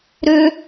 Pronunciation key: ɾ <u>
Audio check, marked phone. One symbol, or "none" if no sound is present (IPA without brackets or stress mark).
ʏ